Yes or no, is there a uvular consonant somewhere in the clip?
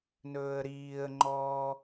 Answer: no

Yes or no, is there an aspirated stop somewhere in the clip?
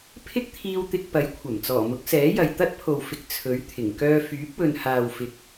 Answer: yes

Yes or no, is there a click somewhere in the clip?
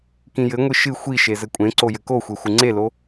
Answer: yes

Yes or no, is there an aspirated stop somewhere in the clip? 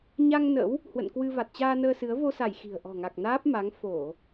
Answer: no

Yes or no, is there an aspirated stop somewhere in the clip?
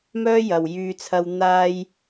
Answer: yes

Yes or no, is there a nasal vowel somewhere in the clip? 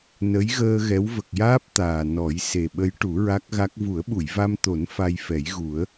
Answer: no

